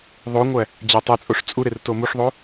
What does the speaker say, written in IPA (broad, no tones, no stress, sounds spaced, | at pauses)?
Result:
ðˤ o ŋʷ æ | d͡ʑ æ tˤ e t͡sʼ o ʂ t͡sʼ u ɾ e r t o m u ʂ ðˤ o